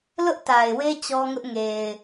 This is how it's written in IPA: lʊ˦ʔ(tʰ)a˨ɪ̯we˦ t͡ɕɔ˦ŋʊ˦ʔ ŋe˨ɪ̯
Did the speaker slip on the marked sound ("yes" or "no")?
yes